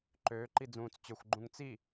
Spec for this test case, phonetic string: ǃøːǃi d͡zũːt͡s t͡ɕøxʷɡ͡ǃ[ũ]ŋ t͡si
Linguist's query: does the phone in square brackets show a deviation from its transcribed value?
no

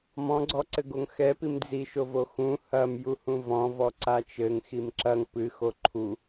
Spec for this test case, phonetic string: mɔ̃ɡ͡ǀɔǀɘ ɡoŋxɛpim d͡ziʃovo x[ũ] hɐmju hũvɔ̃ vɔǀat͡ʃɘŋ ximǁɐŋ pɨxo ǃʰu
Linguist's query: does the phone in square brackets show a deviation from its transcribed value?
no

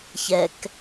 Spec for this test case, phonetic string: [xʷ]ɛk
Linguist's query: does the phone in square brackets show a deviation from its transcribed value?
yes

